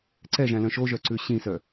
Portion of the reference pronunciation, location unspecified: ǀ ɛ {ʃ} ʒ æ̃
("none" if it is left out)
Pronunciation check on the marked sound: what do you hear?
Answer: none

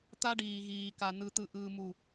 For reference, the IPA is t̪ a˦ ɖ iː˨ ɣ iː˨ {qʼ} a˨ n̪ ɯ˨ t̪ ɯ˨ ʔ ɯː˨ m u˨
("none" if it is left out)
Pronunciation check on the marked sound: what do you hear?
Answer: k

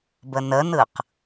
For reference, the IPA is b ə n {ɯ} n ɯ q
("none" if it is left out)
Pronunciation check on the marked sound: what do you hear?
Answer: ə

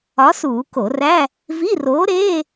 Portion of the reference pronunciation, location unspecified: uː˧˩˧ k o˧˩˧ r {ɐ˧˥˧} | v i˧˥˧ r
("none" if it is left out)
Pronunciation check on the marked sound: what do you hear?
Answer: æ˧˥˧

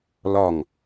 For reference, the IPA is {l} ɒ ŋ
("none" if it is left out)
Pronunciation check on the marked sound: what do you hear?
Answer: l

